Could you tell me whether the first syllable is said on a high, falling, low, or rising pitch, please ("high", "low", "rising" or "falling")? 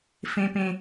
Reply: high